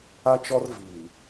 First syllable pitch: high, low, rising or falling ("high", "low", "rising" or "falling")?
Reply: high